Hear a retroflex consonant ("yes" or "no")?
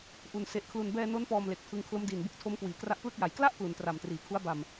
no